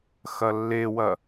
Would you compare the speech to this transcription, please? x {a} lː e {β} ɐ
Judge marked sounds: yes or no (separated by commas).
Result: no, no